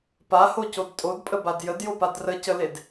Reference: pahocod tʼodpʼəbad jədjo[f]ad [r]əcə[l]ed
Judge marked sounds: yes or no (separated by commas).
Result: no, yes, yes